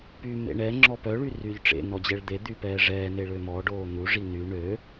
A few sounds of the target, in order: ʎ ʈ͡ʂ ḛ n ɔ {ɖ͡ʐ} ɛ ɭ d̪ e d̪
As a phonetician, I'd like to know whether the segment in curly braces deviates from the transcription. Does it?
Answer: yes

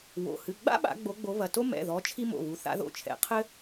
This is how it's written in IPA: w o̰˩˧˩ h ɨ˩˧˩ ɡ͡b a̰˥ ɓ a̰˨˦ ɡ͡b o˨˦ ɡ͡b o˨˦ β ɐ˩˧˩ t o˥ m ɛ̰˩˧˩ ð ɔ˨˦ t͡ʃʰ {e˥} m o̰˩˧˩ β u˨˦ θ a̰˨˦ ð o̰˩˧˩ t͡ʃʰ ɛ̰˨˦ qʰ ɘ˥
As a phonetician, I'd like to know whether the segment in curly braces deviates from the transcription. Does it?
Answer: yes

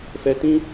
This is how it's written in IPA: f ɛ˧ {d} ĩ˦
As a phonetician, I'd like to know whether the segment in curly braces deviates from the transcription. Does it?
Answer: yes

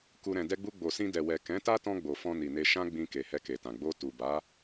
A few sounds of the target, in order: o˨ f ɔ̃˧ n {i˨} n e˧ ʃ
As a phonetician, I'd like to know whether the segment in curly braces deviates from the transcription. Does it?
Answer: no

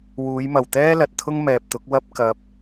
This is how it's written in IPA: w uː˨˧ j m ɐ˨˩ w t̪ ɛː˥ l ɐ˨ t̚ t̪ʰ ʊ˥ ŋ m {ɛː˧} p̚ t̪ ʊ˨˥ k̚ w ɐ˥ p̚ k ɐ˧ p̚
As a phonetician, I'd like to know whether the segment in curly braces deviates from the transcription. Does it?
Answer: yes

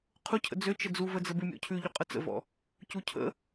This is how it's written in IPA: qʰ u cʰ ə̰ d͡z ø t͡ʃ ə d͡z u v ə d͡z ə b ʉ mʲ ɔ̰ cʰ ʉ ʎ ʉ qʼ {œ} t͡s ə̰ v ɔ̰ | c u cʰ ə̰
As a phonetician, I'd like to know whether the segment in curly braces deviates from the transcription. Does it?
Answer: yes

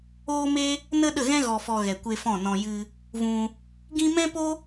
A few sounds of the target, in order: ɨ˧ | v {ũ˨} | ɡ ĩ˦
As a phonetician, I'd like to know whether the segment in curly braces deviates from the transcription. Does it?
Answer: yes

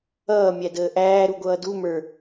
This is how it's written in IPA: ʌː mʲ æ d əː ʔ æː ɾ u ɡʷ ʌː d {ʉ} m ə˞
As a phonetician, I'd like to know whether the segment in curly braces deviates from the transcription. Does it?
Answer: yes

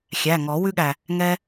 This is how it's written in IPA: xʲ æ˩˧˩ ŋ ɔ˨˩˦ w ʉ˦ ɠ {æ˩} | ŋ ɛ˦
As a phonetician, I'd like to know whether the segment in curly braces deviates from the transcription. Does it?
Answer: no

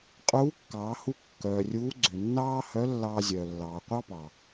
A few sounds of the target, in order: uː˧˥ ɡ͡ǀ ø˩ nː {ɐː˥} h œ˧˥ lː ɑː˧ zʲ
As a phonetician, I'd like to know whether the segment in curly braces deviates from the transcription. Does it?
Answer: yes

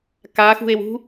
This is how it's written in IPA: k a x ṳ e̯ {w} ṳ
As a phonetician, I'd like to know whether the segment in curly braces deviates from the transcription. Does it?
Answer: no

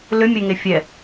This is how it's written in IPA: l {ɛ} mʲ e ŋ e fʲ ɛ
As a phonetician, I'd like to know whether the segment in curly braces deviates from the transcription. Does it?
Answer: yes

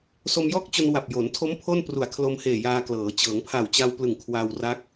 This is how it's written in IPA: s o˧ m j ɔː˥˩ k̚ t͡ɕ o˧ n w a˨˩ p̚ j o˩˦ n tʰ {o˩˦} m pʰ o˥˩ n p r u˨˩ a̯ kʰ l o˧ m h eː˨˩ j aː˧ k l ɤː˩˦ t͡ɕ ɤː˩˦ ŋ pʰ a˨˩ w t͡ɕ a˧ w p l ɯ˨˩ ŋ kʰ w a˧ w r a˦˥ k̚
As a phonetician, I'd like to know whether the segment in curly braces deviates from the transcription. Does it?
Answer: yes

